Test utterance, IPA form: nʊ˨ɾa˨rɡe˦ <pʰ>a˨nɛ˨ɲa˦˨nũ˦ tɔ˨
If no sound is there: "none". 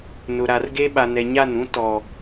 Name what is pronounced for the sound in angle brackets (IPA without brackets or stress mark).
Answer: ɓ